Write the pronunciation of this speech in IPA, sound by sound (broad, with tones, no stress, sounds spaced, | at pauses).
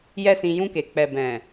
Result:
j ɛ˦ s ĩ˧ j ũ˧ k e˨ k͡p ɛ˨ b ɛ̃˨